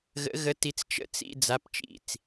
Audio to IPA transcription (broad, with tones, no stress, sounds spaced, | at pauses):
ɣ ə̰˧˥ ɣ ə˧˥ t i˧ t͡s t͡ʃ ə̰˧˥˧ t͡s ḭ˧˥˧ d͡z a˧˥˧ p t͡ʃ ḭ˥˩ t͡s